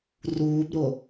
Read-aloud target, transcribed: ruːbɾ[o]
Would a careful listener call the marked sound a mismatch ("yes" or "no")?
no